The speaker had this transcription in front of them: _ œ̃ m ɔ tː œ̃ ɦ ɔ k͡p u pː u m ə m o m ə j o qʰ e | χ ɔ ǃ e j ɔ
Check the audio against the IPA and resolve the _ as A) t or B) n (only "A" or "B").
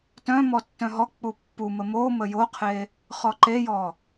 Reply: A